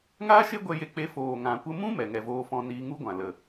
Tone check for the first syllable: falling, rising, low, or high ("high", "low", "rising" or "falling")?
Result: high